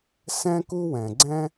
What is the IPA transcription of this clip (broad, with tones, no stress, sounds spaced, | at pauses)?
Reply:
s ɛ̃˥ k u˥ w ɛ̃˩ ɡ͡ǀ ɛ̃˥